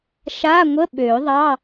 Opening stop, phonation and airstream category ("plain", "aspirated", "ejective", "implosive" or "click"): implosive